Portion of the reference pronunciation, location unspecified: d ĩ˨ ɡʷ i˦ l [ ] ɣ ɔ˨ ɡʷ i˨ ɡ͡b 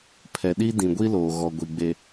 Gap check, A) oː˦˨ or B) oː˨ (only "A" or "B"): B